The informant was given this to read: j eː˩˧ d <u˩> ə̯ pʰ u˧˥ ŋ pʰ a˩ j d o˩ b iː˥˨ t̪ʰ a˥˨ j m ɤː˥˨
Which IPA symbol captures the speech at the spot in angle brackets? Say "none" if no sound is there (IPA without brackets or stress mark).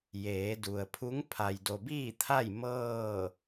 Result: u˩